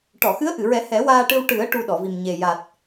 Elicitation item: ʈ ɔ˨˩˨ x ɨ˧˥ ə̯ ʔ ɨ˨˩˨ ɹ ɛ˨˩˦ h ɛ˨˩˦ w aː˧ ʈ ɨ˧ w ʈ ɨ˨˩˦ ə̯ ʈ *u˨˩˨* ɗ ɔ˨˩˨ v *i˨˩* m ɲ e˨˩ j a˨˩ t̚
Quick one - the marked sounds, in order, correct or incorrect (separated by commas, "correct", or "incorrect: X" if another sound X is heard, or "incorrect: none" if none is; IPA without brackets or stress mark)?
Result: incorrect: u˧, correct